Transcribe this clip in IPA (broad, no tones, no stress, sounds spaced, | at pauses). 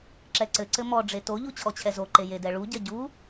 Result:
ǁ ɛ ǀ ɘ ǀ ɘ m ɔ ɖ͡ʐ e t o ʎ u t͡ɕʰ ɔ t͡ɕʰ ɛ z o ǃ e j e d ɛ ɭ u ɟ ɐ ɟ u